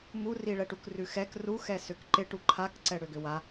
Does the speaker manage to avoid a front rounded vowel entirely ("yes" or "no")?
no